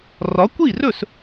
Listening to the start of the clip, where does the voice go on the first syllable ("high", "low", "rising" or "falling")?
rising